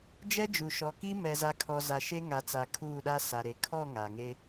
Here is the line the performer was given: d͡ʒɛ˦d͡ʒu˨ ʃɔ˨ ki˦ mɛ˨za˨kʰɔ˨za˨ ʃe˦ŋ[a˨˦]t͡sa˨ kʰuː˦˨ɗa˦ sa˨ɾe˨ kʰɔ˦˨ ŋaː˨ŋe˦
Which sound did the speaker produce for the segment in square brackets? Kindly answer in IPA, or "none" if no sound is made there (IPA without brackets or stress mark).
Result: a˨˦